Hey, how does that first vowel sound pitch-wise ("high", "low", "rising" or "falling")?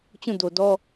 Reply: falling